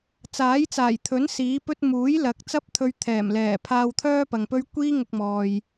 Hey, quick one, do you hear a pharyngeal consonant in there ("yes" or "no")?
no